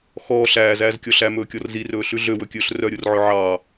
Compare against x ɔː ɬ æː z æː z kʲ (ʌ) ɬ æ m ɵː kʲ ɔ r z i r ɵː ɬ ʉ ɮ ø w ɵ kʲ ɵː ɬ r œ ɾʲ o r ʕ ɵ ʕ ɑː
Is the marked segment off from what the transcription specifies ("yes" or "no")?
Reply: yes